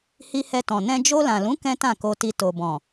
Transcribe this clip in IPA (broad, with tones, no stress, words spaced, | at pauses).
hi˧hɛ˧tɔ̃˨ nɛ̃˧ d͡ʒo˧lã˨lũ˨˦ kɛ̃˦tã˦˨ko˧ti˧ to˨bɔ̃˨